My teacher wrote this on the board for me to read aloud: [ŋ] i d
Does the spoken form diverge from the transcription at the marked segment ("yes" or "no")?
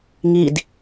no